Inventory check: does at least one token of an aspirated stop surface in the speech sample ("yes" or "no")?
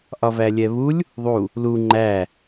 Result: no